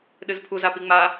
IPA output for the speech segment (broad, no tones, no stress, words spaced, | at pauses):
ɗɨzpʰu zapiŋ͡ma